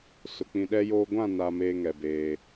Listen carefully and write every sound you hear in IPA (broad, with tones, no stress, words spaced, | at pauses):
sʊ˨k͡pĩ˨ɗɛ˦joː˦ ɡʷã˦˨na˨ meː˦ŋɛ˨beː˦